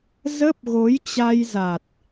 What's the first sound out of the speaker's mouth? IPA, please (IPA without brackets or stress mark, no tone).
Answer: z